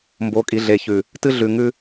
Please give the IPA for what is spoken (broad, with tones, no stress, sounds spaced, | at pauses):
m b o˨˦ kʼ i˨ ɮ e˨ ç ʉ˨ | t ɨ˦ ɮ ʉ˨ ŋ ʉ˦